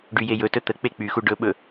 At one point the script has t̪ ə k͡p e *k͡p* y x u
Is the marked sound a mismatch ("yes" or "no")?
no